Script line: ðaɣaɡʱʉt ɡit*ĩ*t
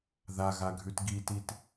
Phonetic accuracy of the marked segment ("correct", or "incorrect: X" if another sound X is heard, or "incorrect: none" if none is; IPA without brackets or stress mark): incorrect: i